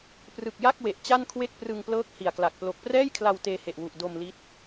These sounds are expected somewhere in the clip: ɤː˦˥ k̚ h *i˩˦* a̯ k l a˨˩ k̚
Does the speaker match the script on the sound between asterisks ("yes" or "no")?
no